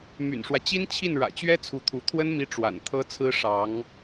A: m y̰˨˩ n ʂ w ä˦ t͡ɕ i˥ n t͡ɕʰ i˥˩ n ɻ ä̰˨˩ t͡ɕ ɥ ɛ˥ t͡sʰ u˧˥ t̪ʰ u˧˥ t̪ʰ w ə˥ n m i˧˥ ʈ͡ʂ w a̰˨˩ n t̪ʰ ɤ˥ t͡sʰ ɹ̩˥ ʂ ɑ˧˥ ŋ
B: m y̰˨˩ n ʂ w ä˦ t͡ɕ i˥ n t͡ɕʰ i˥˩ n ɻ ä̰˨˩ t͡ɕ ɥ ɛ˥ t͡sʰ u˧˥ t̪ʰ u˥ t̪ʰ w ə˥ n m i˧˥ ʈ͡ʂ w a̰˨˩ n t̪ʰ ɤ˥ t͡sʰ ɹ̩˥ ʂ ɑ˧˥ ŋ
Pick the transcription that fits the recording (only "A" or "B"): A